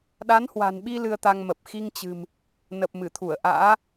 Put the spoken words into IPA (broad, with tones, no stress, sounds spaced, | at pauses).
ɗ a˨˦ n h w a̤˨˩ n ɓ i˧ l ɨ˧ ə̯ t̪ a˧ ŋ m ə˨˩ p̚ x i˧ ŋ t͡ɕ ɨ̤˨˩ m | n ə˨˩ p̚ m ɨ˧˩ t̪ʰ u˧˩ ə̯ ʔ a̰ː˧˥